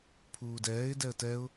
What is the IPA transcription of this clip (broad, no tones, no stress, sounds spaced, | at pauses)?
pʰ uː d ɛː ɪ̯ d ɛ ə̯ t ɛ ʊ̯